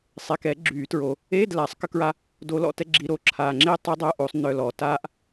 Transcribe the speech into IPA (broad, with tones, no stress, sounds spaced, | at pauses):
sˤ e˨ k ɛ˨˩˦ ɡ͡ǁ yː˨˩˦ t ɹ o˨ | eː˧˥˧ d l aː˨˩˦ sˤ k ə˥ k ɹ a˥ | d o˧˥ l ɔ̰˧˥˧ t ɛ˥ ɡ͡ǁ i˧˥˧ ɾ o˧˥ ǁʰ aː˨ ŋ͡ǁ eː˥ tˤ i˧˥ dˤ œ˧˥˧ ʔ o˨˩˦ sˤ n œ˨ l ɔː˨ t aː˥ ʔ